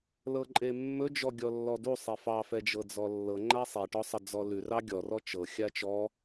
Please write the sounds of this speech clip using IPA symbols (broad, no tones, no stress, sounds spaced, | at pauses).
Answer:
l ɤ ǃʼ e mː ɵ d͡ʒ ɔ ɡʲ ɔ lː ɔ d u sˤ e f ɑ f ɛ d͡ʒ ɤ d͡z ɔ lː ɤ ŋ͡ǃ a sˤ e ʈ ɔ sˤ ə d͡z ɔ l ʉ r ɑ ɡʲ ɔ r ɔ t͡ʃ ɤ xʲ a t͡ʃ ɔ